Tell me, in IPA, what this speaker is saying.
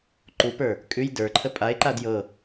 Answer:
ǃ u p ə˞ | kʼ ʉ j d ə˞ ǃʰ ə pʼ a e̯ ǃ a d j ɤ

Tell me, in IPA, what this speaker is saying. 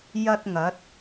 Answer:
j ɐ˥ t̚ ŋ ɐ˨˥ t̚

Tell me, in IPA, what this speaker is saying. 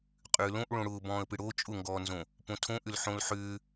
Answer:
qʼ ʏː l õ ʔ ɭ õ ɽ ʊː b ɔ̃ː ə̯ p ɪ ɽ o t͡ʃʼ ʊ ŋ ɡ ɔː n z õ | p õ tʰ õ ʔ ʏ l ħ õ l ħ ʏː

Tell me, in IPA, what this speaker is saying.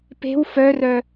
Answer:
p e̤ w f œ r œ

